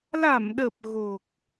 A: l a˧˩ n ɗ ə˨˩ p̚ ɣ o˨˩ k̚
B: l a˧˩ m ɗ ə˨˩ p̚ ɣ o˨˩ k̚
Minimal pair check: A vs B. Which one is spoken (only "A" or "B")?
B